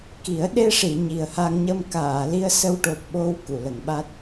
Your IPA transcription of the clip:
k i˨˩˦ ə̯ ɗ e˧ ʂ i˨˩˨ ɲ i˨˩ ə̯ h a˧ ŋ ɲ ə˧ m k aː˨˩˨ l i˧ ə̯ s ə˧ w ʈ o˨˩ p̚ ɓ o˧ w k u˨˩˨ l ə˨˩˨ ŋ ɓ a˦˥ t̚

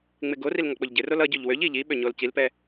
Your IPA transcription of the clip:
ŋ͡m ɪ ɡ o r i l ŋ ɔ k͡p o ʎ ɟ ɪ r o l ʌ ɟ ø ʎ w ø ʎ i ʎ i ɓ ø ɲ o l c i l p ɛ

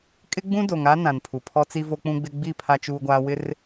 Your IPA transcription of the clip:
kʼ ɪ˦ ɡ͡b ũ˦ d o˨ ŋ a˦ n ã˨ n pʰ u˨ pʰ ɔ˦ t͡s i˦ v o˦ k͡p ũ˦ ɡ͡b ɪ˦ ɡ͡b i˦˨ pʰ a˦ t͡ʃ uː˦ ɡʷ aː˦ w ɪ˦ r

